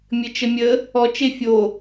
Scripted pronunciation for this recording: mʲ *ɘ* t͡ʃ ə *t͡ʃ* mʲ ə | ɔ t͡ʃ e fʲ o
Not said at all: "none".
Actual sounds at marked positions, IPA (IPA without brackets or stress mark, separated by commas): ɘ, none